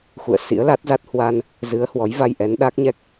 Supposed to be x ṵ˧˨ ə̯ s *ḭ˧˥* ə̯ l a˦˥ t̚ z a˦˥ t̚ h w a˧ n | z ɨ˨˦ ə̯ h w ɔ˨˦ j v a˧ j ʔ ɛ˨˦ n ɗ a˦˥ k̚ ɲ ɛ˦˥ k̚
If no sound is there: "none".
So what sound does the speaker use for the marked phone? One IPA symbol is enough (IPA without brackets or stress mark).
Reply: ḭ˧˥